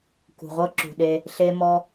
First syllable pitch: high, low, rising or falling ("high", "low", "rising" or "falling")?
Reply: low